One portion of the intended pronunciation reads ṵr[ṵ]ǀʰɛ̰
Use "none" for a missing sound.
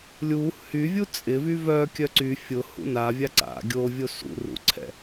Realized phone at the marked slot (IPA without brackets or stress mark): ṵ